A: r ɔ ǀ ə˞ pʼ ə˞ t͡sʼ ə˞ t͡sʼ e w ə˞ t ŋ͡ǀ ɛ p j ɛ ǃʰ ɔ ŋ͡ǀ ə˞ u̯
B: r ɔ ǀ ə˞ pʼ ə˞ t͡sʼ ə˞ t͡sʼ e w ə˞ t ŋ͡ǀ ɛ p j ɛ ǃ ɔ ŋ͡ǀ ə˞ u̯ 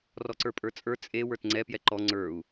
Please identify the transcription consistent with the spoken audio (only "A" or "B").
B